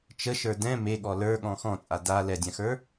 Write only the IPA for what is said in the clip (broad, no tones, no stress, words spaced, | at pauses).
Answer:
t͡ʃəʃə˞ dɛ̃ meɠɔ lə˞ɠɔ̃ xɔ̃t͡sʼa da lɛdʲãxə˞